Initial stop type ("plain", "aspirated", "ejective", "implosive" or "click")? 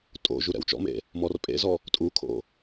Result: ejective